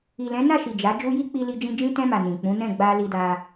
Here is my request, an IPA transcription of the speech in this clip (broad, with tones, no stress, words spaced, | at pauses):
i˨lɛ̃˨˦na˦˨ʃi˨ d͡ʒa˨˦ d͡ʒu˧ji˦ k͡pi˧li˧d͡ʒĩ˧ d͡ʒĩ˧tɛ̃˧ma˨ nĩ˨k͡pũ˨˦ nɛ̃˦˨ɡ͡ba˧li˧da˧